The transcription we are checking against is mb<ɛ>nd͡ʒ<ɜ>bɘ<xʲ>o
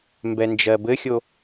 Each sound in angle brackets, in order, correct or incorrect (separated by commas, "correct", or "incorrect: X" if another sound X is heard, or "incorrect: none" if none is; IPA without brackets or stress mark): correct, correct, correct